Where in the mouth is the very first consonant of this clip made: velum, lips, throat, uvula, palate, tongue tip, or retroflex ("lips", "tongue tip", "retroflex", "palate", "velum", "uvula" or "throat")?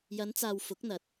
palate